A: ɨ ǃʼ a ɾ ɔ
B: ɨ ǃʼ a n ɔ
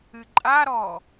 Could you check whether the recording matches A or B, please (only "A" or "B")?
A